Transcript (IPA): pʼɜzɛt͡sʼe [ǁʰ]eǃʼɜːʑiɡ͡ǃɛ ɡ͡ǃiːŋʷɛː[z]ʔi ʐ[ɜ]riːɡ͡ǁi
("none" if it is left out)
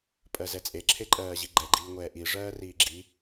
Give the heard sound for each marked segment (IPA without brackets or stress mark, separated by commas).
ǁʰ, none, ɜː